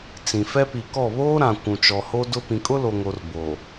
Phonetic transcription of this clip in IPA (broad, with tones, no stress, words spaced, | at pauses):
t͡sĩ˨fɛ˦ pi˨kɔ˦˨ βoː˦ɾã˨ kʷũ˨t͡ʃɔ˨ho˦dʊ˦ pĩ˨kʼʊ˦lo˨ŋo˨r bo˨